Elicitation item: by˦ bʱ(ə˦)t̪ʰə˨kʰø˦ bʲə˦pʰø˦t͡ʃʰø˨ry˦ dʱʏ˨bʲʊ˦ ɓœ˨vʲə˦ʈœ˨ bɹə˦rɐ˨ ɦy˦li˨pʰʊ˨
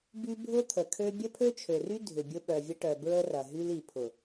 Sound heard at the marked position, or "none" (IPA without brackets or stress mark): ʊ˦